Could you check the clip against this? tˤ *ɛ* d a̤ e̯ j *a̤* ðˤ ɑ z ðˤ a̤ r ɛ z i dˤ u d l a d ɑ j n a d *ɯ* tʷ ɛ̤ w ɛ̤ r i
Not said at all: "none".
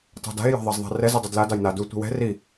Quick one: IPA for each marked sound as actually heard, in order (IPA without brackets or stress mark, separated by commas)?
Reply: ɛ̤, a̤, u